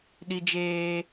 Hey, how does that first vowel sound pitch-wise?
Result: high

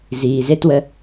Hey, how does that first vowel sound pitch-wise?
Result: low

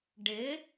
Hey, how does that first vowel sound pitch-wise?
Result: rising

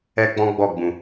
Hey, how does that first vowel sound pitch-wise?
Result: high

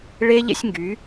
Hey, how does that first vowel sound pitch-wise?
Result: high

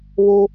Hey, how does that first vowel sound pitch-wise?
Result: high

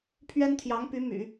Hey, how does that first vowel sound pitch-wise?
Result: high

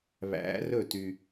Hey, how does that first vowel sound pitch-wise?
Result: rising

